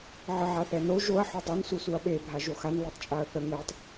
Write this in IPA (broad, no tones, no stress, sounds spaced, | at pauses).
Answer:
ʕ ə ʕ a θ ɛ n o ʒ o ɐ̯ ħ o dˤ o n s u s u ɐ̯ ɓ e bʱ a ʒ o x a n l e tˤ t͡ʃʼ a ɐ̯ θ ə ŋ ɛ tˤ